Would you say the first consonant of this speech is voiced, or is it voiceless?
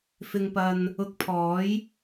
voiceless